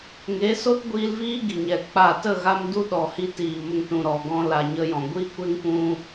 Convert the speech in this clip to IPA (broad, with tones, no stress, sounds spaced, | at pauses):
ŋ e˨˦ s o˦ t ɡʷ iː˧ l v iː˦ ɡ i˨ ɲ ɛ˨ k͡p a˦˨ t ə˦˨ ɣ a˧ m d u˦ ɗ ɔ˨ h i˧ t iː˨ m ə˧ ŋ t ũ˨ ɾ ɔ˨ ɡ ɔ̃˧ l a˨ ɲ ə˧ j ɔ̃˨ ɡʷ i˦ kʷ e˦ ŋ p ũ˧